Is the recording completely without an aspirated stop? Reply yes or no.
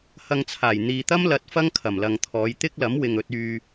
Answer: no